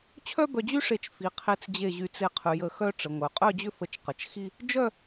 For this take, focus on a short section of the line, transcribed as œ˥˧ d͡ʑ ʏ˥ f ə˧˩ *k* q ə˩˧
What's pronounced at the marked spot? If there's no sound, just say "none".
t͡ʃ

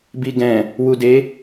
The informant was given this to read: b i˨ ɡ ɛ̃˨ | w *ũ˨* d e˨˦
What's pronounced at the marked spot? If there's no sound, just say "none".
u˨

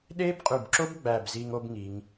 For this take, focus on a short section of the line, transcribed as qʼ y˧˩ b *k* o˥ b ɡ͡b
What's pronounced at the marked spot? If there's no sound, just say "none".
ǁ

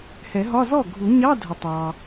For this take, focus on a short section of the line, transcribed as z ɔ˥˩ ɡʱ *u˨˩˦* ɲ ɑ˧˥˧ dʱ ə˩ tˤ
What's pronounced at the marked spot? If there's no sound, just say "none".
u˨˩˦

